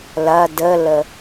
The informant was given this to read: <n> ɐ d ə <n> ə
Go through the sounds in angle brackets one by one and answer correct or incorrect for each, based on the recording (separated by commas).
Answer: incorrect, incorrect